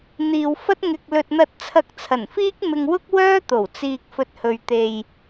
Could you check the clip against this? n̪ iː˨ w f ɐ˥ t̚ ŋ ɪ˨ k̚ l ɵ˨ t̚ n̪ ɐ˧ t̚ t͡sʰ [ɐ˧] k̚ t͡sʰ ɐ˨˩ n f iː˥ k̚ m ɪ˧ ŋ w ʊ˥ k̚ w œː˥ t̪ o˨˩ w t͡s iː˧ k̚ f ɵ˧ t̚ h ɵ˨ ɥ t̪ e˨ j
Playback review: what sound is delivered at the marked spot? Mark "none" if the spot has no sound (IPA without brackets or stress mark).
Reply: ɐ˧